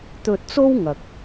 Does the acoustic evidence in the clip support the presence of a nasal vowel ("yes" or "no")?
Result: no